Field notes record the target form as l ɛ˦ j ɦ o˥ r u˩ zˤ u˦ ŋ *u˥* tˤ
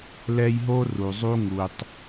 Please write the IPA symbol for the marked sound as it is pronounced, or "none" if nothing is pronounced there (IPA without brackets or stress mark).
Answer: u˨